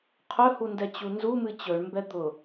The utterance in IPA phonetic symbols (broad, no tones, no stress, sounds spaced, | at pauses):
qʰ ɵ h u n d ɛ t͡ɕ u n z u m ɨ t͡ɕ ɵ ɳ m b ɛ d̪ ʊ